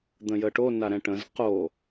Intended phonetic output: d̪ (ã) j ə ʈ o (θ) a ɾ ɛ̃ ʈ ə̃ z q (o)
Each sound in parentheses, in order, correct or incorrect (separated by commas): incorrect, incorrect, correct